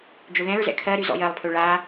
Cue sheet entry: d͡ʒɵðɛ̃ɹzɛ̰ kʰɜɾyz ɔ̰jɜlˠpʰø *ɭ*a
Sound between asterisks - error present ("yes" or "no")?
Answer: no